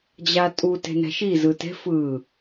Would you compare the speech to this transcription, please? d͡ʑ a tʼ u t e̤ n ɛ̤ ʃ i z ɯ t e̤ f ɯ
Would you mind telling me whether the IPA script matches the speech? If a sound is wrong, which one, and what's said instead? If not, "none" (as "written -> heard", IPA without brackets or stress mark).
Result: none